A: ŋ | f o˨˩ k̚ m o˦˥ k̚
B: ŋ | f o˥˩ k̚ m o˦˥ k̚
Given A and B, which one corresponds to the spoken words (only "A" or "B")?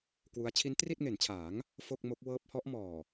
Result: B